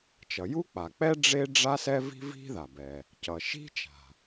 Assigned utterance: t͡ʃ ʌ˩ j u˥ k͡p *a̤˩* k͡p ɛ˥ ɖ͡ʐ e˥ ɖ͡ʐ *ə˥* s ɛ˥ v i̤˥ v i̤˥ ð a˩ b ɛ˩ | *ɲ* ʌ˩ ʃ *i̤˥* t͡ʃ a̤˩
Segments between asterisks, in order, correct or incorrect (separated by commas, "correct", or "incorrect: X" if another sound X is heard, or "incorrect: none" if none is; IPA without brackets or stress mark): incorrect: a˩, incorrect: a˥, incorrect: c, correct